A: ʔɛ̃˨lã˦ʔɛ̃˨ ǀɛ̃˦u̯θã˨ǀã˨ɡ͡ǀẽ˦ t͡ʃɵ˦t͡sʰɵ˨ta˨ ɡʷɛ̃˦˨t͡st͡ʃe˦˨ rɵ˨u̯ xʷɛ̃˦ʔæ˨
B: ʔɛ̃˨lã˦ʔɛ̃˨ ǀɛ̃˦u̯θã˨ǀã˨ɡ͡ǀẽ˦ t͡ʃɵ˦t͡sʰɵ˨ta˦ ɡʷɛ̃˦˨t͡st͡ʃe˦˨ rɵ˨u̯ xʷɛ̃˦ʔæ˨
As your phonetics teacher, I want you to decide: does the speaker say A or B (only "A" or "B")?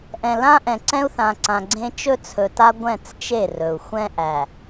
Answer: B